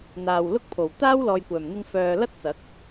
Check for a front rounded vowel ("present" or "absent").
present